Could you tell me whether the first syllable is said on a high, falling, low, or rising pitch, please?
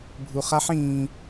low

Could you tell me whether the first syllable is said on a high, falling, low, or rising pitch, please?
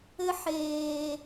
high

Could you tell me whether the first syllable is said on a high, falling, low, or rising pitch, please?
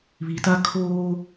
low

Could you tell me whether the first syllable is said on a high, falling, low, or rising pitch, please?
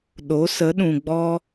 rising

